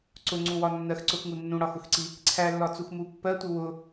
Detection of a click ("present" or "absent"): present